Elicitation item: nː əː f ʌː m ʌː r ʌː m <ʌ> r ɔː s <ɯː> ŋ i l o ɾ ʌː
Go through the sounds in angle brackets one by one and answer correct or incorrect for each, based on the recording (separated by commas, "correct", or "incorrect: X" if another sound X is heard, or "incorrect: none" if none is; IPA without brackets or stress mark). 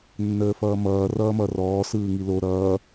correct, correct